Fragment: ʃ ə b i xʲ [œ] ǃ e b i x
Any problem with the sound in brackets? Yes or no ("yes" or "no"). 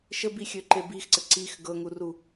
yes